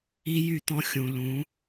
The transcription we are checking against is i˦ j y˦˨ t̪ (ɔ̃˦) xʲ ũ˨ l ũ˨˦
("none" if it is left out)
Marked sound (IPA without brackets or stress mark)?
ɔ̃˦